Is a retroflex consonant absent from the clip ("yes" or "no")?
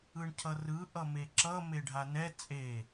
no